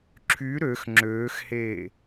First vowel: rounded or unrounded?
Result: rounded